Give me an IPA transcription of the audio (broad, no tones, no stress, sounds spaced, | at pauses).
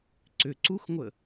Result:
ǀ ʏ ǀ u x ŋʷ ə